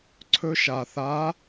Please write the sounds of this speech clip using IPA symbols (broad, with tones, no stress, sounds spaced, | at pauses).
ǀʰ ɵ˧ ʃ a˩ θ a˧˥